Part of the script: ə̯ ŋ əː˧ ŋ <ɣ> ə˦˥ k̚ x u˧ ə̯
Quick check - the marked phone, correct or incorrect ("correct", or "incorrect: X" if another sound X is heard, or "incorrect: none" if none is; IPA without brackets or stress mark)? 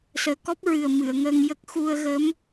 incorrect: j